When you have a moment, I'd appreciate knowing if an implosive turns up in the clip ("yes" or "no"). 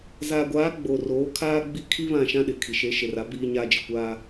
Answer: yes